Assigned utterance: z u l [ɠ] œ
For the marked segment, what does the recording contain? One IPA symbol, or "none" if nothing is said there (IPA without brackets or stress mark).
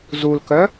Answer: k